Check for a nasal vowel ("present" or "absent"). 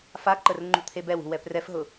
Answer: absent